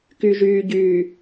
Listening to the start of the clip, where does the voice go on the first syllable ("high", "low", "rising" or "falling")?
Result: low